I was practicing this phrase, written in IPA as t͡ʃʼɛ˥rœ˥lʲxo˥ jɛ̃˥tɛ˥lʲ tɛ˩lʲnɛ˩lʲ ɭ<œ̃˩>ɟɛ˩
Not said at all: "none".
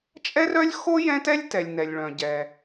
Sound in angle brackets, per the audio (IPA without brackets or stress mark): œ̃˩